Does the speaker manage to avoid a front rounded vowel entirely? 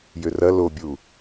no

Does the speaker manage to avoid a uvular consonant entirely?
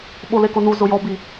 yes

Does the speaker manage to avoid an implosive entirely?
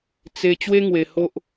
yes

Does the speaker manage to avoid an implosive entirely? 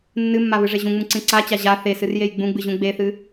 yes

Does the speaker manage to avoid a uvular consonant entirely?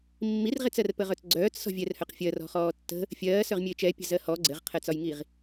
no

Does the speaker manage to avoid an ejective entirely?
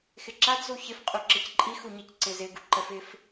no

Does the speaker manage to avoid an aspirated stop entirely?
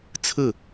no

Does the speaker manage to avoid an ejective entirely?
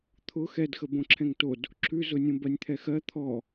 yes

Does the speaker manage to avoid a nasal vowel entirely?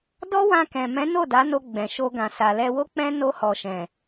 no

